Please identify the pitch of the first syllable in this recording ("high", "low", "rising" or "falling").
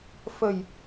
low